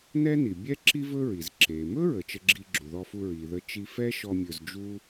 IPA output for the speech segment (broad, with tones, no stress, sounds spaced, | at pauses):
n ɛ˥ n i˩ bʲ ɛ˥ ǁ i˥ v ɵ˥ ɹ i˩ z ǁ e˩ m ɵ˥ ɹ ə˩ t͡ʃ ə˧ ɡ͡ǁ i˧ ɡ͡ǁ u˩ ð ɔ˧ f u˧ ɹ i˩ ð ə˥ t͡ʃ i˥ f ɛ˥ ʃ ɔ˧ mʲ ɵ˧ z d͡ʒ u˥